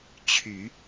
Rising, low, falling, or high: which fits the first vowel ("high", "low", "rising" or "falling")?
low